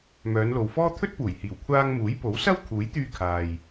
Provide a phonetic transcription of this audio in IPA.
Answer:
mœː˨˧nlo˨wfɔː˥ t̪ʰɵ˥t̚puː˨˩jhiː˨˩w kʷʰaː˧ŋmuː˨˥jpo˨˥wsɐ˥w kʰuː˨˥jt̪yː˧kʰaː˨j

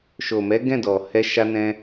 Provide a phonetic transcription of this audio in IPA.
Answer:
ʃo˨mɛ˨˦ ɡɛ̃˦˨dɔ˨ hɛ˧ʃa˧nɛ̃˧

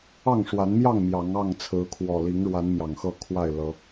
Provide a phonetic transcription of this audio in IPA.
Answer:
ɑ˥˨ŋʂwa˨˦nmjɑ˥˨ŋ mjɑ˨˦ŋɑ˥˨ŋt͡sʰɹ̩˨˦kʰwɔ˨˩ li˨˦ŋɻwa˨˦n mjɑ˨˩ŋxɤ˥˨kʰwa˥˨ɪ̯ lɤ˨˦

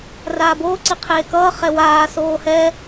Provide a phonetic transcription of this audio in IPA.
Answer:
raːboː ǀiqʰeːkʌː χɛwaː soːhɛ

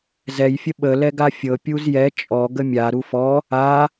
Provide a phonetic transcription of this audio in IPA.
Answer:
zɛjfʲə ɓəlɛ ɡafʲɤ pʲuzjɛ t͡ʃʼɔ ɡəmʲa ɾufɔ | a

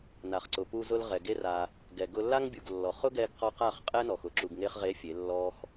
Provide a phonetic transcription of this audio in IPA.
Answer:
na˨χǀʊ˨pu˧zʊ˧l ʁɛ˨ɡe˦ra˧ | ɡɛ˨ ɡʊ˧lːa˦ŋbʲu˨ɡ lːɔ˨χ ʊ˦ɡɛ˧ɡqɔ˧ qa˦˨χqʼɛ˦nɔ˨x ʊ˧ǁu˨ɡŋe˧χʁe˨˦ fʲe˨˦lːɔ˦x

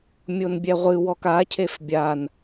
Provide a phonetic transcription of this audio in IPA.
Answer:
mʲonbʲɛʁʷɨwɔk acʰef bʲan

